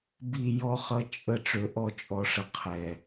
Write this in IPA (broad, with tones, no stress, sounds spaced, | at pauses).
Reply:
b i˦˨ j ɔ˦ χ ʌ˦ t͡ʃʼ ə˦ ʈ͡ʂ ø˨ ʔ ɔ˦˨ t͡ʃʼ ɔ˨ ʂ ə˨ qʰ ɛ˨